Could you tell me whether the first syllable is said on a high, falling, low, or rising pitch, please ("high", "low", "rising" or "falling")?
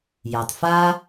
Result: low